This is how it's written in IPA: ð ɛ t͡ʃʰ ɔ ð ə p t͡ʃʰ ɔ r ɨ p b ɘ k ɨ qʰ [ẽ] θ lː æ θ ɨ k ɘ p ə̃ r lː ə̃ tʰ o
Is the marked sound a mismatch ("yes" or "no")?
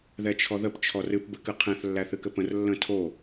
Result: yes